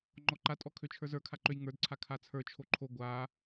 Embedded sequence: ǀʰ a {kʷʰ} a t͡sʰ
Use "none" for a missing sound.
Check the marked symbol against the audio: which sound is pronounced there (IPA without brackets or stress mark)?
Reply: kʰ